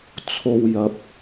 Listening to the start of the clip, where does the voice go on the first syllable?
low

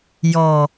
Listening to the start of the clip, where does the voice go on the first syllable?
low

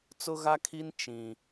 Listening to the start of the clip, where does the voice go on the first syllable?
high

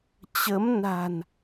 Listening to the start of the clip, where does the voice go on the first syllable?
rising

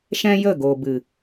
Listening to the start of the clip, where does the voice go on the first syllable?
high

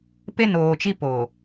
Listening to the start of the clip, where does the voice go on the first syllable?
high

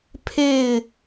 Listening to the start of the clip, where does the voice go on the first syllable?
falling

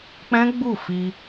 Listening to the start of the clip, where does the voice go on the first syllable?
high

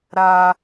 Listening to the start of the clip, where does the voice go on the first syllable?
high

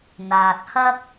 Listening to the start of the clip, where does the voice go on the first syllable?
low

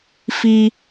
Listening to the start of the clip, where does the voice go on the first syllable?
high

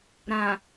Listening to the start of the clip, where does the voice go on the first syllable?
low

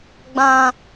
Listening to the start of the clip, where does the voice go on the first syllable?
low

